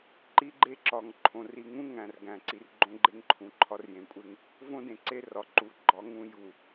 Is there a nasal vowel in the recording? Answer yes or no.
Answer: yes